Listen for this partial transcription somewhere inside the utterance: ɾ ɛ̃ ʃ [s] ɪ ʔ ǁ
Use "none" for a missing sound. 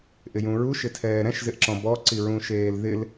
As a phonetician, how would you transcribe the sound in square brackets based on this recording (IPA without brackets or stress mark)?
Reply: z